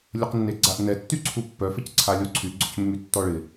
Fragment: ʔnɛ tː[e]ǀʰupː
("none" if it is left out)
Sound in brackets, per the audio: y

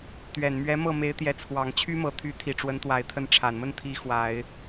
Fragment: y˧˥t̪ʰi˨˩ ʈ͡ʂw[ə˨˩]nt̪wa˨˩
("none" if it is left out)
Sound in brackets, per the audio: ə˧˥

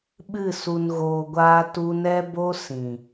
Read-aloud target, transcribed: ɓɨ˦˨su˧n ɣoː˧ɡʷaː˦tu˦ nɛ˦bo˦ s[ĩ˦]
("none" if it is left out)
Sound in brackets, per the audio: ĩ˨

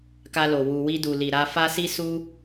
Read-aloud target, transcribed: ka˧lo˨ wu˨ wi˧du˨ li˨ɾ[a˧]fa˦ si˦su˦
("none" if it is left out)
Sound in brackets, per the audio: a˧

